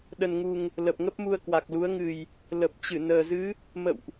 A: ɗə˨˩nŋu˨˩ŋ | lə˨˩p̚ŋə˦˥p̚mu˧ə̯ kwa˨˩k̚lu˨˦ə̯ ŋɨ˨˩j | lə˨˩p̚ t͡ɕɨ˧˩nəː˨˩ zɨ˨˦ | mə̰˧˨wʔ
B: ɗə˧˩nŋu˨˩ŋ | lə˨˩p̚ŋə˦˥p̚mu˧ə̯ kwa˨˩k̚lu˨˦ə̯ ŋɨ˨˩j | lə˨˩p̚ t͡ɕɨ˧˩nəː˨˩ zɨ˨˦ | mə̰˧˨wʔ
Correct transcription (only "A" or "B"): A